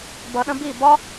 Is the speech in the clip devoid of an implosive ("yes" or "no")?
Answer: no